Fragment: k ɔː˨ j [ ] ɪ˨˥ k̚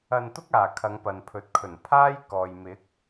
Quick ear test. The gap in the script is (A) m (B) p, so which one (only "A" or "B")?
A